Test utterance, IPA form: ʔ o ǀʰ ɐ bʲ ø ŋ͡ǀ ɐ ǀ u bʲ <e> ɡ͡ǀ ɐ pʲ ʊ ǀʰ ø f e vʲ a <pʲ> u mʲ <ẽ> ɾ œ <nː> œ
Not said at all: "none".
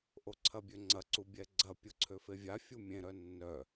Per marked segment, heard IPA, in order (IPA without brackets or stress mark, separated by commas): ɛ, fʲ, ẽ, nː